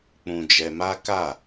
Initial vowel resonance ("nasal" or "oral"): nasal